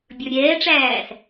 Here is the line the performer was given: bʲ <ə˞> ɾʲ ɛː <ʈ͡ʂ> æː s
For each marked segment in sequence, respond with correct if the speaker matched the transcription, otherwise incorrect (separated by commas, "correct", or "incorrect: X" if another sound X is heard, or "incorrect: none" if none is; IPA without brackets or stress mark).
correct, correct